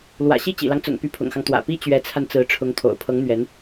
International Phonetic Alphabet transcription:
l w ä̰˨˩ ɕ i˥˩ t͡ɕ ḭ˨˩ l ɑ˦ ŋ t͡s ʊ̰˨˩ ŋ p y˧˥ pʰ ʊ̰˨˩ ŋ x ɑ˦ ŋ t̪ w ä̰˨˩ p i˥ t͡ɕ ɥ ɛ˧˥ t͡sʰ a˧ n t͡s ɹ̩˧˥ ʈ͡ʂʰ ʊ˧˥ ŋ t̪ʰ o̰˨˩ ʊ̯ pʰ ɤ˧˥ ŋ n̪ ɥ ɛ˧˥ n

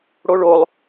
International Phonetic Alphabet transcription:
ɽ o ɭ o lˠ

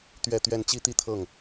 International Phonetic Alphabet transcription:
t̪ ɥ ɛ˥˧ t̪ ɥ ɛ˥˩ n t͡ɕ i˥ t̪ i˥˧ t̪ʰ ɤ˥˩ ŋ

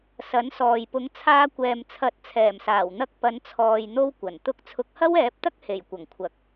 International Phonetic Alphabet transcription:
s ɐ˨˥ n s ɔː˨ j p ʊ˨˧ ŋ t͡sʰ aː˧ kʷ ɛː˨ m t͡sʰ ɐ˨˥ t̚ t͡sʰ ɛː˨˩ m s aː˨˩ w n̪ ɐ˧ k̚ p ɐ˨˧ n t͡sʰ ɔː˨ j n̪ o˧ w kʷ ɐ˨˩ n t̪ ʊ˧ k̚ t͡sʰ ʊ˨˥ k̚ h ɐ˥ w ɛː˨˥ p̚ t̪ ɐ˥ k̚ h e˨˩ j kʷ ɐ˨˩ ŋ kʷʰ ɐ˨˥ k̚

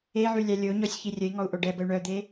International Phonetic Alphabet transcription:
e ʕ y lʲ a lʲ o ɲ ɔ sʲ ç i rʲ ə i̯ ŋ ɔ u̯ ʔ o ɖ ɛ b ə y̯ ɳ œ d̪ e

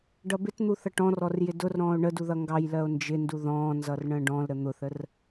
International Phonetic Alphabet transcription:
ɖ ʌ b ɪ t n̪ u θ ʌ ʈ ɔ̃ r ɔ r j ɪ d ʊ r ɾ ɔ̃ː o̯ ɳ ə d u ð ʌ ŋ ɡ ɑ j l ɜ o̯ n d͡ʒ ɪ n d u ð ɔ̃ː n z ʌ r ɳ ə̃ː ɖ ɔ̃ l ɾ ə n̪ ʊ θ ə r

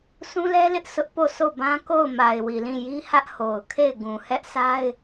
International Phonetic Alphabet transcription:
s ũ˦ l ɛ˦ l ɪ˦ ʔ s ʊ˦ ʔ p o˦˨ sʰ o˦˨ b ã˦ k o˦˨ ʊ̯ m a˨ ɪ̯ w i˨ l ĩ˦˨ j i˦ h ä˦ ʔ h o˨ ʊ̯ kʰ e˦˨ ɪ̯ ɡ ũ˨ h ɛ˦ ʔ sʰ a˦ ɪ̯

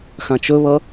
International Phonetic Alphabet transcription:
x ã t͡ʃ ɵ β ʌ

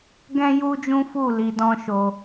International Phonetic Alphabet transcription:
ɡ ɛ̃˦ j u˦ d͡ʒ ũ˦ f u˦˨ l i˧ d ɔ̃˦ ʃ o˧

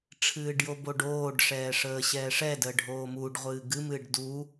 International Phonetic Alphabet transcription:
ʈ͡ʂʰ ɨː ɖ j o b o ɖ oː ɖ ʂ ɛː ʂ əː ɕ ɛː ʂ ɛ d əː ɖʱ oː m uː ɖ ʁʷ ɨː ɡ ɨ m ɨː ɖ d u

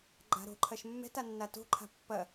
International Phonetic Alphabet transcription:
ɡ͡ǃ a̤ ɾ o̤ ǃʰ ɐ ʃ mː ɛ̤ t a nː a t o̤ ǃʰ a̤ pː ɐ

